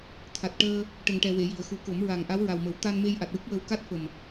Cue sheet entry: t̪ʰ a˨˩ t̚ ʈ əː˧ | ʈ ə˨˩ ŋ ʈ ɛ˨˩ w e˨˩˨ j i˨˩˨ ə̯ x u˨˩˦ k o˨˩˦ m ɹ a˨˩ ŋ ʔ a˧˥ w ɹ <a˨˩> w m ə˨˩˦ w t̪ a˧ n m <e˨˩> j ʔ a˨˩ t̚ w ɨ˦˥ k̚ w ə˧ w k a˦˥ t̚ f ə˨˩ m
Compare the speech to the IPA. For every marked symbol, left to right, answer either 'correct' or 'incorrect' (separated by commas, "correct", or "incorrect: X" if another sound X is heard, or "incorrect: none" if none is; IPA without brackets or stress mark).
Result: correct, incorrect: e˧